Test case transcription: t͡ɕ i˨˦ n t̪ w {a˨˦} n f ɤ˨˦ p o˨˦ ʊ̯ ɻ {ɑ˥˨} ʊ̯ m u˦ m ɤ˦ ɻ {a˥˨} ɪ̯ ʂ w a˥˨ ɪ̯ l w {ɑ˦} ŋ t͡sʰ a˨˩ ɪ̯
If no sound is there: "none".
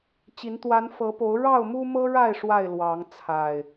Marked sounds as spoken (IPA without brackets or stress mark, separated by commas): a˨˦, ɑ˥˨, a˥˨, ɑ˨˦